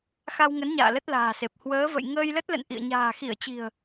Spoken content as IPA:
x a˧ w ŋ ə˨˦ n ɲ a̰ː˧˨ l ə˦˥ t̚ l a̤ː˨˩ s e˨˩ p̚ h w əː˨˦ v ə̰˧˨ j ŋ əː˧ j l ə˦˥ t̚ l ə̰˧˨ n ʔ ḭ˧˨ ə̯ ɲ a̤ː˨˩ x i˧˩ ə̯ t͡ɕ i̤˨˩ ə̯

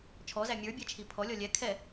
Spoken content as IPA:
t͡ʃʰ ɔ z æ mʲ ə˞ bʲ ɛ t͡ʃʰ i pʰ ɔ lʲ ɔ lʲ ɛ kʰ ɛ

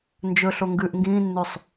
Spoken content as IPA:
n d͡ʒ ɵ ɬ o ŋ ɡ ʉː ʔ ŋ ɡ ĩː nː ʉ sˤ

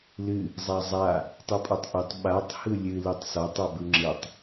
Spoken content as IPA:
l ɨ | zˤ a zˤ a | tˤ ɯ pʼ ɔ tˤ ʔ ɯ tˤ ɓ a tˤ h ɯ lʲ ɨ l ɯ tˤ s ɔ tˤ ɔ b ɯ ŋ͡ǁ ɯ tˤ

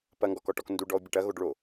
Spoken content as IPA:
p ɐ ŋ ɡ ɔ k ɔ ʈ ɔ k n d u ɖ ɔ o̯ bʲ ɐ ʈ ɐ ɣ o ɖ ɭ o

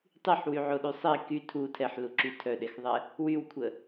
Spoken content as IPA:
tˤ y ħ w y ʕ o ɗ y sˤ i k y tʰ u tʰ ɛ ħ l u ǁ y tʰ œ ɗ e x ðˤ ɛ | w y w kʷʰ ə

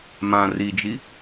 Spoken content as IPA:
m ã r i d͡ʒ i

